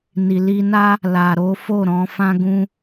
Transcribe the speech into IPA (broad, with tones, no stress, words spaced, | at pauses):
ni˨li˧na˦ | la˨ɾo˨˦fo˦˨ ɾɔ̃˨˦fã˦ɡũ˦